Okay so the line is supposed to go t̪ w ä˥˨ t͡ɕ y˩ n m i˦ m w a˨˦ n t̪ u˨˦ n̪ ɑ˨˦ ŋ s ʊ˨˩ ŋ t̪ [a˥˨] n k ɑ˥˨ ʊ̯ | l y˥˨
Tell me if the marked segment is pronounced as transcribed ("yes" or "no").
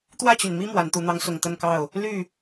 no